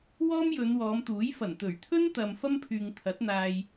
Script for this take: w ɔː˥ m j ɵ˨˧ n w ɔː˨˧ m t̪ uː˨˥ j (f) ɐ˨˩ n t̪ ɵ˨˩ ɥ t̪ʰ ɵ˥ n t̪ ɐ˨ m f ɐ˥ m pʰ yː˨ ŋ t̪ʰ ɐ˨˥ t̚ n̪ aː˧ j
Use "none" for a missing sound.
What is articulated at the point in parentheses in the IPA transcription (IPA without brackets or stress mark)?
f